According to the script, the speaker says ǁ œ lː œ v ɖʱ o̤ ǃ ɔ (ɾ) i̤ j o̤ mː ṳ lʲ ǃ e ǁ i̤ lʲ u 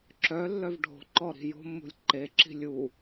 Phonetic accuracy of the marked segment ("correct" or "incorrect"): correct